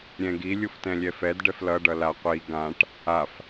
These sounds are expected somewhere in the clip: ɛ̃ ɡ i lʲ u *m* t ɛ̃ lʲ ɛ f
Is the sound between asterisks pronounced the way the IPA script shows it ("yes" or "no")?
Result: no